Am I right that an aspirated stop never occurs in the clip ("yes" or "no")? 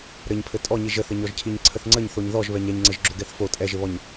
no